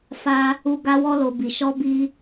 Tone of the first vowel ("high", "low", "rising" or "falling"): high